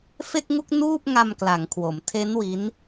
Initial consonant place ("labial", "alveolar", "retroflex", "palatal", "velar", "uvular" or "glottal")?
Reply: labial